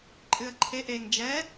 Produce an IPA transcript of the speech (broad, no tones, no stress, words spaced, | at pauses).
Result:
ǃʼɨə̯ǃʰe ʔeŋ d͡ʒɛ